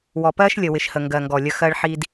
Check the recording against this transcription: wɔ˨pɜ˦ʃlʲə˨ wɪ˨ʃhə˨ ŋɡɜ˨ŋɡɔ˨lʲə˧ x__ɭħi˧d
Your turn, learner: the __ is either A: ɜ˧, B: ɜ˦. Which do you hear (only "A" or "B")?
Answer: A